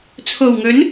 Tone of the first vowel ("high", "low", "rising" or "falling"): low